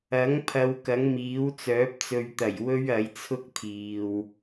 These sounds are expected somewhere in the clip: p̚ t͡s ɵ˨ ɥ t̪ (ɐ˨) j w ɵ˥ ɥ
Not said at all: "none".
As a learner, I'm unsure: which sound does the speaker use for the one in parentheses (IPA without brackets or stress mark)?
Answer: ɐ˨˩